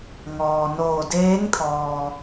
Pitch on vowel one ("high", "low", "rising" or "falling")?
low